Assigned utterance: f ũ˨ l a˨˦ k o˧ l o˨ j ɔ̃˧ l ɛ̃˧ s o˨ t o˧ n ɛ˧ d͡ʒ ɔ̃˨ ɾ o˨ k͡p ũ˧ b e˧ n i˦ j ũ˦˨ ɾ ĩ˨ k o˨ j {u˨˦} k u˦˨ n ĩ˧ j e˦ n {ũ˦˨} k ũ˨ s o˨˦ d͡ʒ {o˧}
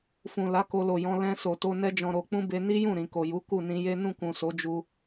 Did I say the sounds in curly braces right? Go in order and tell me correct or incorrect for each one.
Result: correct, correct, incorrect

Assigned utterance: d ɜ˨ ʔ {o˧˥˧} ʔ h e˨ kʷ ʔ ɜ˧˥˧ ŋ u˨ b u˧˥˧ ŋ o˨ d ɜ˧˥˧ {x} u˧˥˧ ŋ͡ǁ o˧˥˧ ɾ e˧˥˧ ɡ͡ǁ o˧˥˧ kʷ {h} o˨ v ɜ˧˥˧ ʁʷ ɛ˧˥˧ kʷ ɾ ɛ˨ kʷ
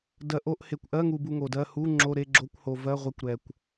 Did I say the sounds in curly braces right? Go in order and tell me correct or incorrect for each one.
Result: correct, incorrect, correct

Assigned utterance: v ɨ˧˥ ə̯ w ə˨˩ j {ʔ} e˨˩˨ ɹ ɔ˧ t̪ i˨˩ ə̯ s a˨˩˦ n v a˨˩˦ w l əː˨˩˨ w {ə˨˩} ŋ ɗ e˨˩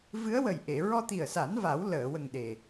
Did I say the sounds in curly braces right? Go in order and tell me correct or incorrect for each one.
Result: correct, correct

